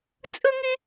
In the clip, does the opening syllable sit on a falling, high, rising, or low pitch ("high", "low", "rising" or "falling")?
high